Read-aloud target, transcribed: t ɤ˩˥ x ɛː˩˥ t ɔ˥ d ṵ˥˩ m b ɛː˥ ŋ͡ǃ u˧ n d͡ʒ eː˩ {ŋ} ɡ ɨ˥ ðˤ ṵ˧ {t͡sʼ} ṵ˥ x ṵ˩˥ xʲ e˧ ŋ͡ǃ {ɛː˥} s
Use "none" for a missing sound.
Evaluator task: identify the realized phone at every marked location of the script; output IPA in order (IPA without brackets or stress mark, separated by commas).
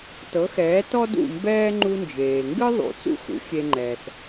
ŋ, t͡s, ɛː˩